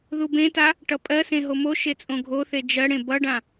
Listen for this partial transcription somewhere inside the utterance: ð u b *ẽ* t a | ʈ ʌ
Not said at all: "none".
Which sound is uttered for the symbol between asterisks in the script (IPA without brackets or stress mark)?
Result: ẽ